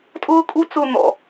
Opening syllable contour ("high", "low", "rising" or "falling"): high